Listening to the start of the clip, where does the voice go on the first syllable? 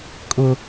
high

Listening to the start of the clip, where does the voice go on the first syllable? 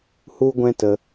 high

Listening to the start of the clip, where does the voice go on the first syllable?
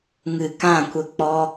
low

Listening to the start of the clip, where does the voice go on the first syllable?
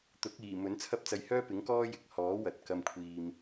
rising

